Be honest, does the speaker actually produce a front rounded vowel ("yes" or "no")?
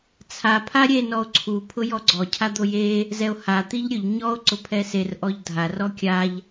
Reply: no